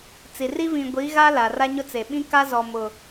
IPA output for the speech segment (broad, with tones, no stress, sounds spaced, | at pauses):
t͡s i˨ r i˦ v ĩ˨ ɡʷ i˨˦ ɣ a˦ l a˨ r a˦ ɲ ʊ˦ t͡s e˨ ɓ ĩ˦ k a˦ z ɔ˨ m ʊ˨